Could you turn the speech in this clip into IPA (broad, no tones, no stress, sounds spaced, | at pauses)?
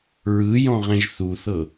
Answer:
ɹ ɯ j ɔ̃ ʁ ɛ̃ ʒ θ u θ ɤ